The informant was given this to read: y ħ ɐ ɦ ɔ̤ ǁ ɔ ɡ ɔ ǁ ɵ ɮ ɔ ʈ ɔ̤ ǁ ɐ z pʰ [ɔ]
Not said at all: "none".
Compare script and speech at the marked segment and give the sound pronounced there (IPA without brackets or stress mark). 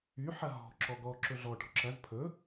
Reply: ɵ